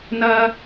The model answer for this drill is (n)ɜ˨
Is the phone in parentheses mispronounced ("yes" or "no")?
no